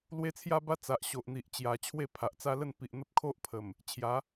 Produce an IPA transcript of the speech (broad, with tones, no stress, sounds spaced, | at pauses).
l w e˧ t͡sʰ j a˧ b a˧ t͡s a˨ ʔ ɕ o˨ ʔ n̪ i˨ ʔ t͡ɕ j a˨˩ t͡ɕʰ w e˥˧ pʰ a˨ ʔ t͡s a˦ l ə˥˧ n p i˨ ʔ n̪ ə˦ p̚ kʰ o˦ ʔ pʰ ə˨˩ m | t͡ɕʰ j a˨˦